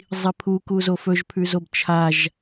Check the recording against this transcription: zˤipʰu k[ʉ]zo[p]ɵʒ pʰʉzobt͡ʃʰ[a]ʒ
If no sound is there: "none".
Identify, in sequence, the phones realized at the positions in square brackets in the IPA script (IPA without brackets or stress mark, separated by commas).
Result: u, f, a